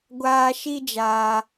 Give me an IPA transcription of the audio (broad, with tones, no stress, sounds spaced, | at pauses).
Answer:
ɡʷ aː˧ ʃ i˦ d͡ʒ aː˧